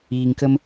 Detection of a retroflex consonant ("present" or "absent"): absent